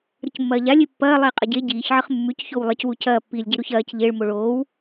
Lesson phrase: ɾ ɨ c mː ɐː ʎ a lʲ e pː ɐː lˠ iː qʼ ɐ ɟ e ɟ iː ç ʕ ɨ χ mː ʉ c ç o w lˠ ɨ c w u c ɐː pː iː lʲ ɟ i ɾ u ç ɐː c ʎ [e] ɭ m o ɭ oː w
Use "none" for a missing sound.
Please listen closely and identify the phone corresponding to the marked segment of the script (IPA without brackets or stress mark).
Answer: e